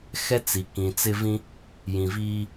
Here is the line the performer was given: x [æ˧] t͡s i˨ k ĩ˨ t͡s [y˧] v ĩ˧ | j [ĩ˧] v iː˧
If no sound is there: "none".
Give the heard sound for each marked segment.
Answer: ɛ˧, ɪ˧, ĩ˨

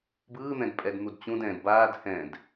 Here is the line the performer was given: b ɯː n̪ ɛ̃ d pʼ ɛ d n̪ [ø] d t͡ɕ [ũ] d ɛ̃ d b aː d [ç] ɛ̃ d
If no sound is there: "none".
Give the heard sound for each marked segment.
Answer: u, ũ, h

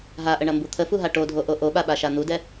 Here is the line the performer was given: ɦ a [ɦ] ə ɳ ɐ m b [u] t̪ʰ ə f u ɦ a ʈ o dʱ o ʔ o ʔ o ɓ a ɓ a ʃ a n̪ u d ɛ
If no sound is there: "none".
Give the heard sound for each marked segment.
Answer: ʔ, u

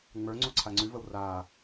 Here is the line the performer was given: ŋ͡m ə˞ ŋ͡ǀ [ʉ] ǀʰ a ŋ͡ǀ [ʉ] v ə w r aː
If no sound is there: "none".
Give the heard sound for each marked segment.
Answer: u, ʉ

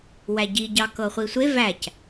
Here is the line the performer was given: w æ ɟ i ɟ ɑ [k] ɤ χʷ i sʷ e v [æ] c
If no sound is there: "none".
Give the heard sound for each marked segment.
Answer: k, æ

